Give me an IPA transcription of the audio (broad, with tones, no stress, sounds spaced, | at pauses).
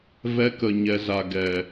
v ɛ˧ k ə˨ ɲ ɛ˨ z a˨ ɡ ɛ˨